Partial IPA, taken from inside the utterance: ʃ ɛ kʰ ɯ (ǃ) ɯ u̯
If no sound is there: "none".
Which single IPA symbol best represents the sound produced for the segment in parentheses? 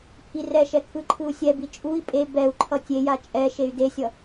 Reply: ǃʰ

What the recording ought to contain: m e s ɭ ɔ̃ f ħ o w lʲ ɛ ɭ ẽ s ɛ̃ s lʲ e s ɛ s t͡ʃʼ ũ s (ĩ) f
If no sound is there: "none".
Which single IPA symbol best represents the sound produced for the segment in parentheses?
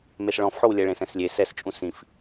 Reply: ĩ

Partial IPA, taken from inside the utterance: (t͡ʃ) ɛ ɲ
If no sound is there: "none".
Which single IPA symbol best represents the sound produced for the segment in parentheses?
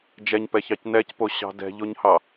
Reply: d͡ʒ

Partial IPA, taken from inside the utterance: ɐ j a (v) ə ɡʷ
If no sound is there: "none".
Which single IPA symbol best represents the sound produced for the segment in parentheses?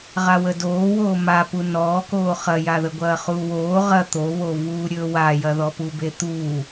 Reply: ð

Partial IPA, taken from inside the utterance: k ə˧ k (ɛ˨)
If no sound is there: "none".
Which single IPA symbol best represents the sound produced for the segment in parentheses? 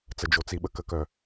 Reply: œ˨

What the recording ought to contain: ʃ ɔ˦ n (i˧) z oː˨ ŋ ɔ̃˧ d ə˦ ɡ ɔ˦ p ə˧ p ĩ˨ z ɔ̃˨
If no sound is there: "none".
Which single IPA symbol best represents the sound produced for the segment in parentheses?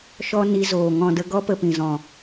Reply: i˧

